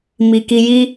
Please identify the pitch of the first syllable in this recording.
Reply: low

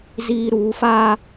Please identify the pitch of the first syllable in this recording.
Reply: high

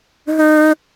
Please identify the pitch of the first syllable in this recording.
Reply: high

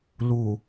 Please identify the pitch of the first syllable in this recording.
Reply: low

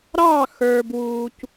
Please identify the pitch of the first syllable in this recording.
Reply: falling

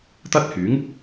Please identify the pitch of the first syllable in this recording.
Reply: high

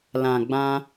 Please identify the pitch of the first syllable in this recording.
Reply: low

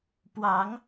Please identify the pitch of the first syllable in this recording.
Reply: rising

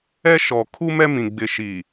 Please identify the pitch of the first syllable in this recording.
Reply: high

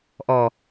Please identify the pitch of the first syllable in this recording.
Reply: low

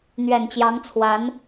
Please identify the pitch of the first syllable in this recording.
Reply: low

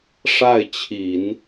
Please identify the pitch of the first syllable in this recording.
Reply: falling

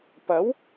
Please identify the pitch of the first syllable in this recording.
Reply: rising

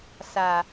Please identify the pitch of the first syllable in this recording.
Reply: low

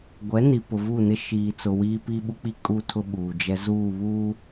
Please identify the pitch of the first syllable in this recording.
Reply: rising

